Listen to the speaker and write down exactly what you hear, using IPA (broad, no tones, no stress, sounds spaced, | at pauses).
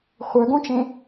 χʷ œ ɡ õ t͡ʃ ẽ